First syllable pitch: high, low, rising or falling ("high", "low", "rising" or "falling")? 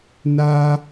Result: high